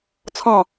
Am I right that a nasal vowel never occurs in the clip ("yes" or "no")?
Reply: no